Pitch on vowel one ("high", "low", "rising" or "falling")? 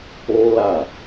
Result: high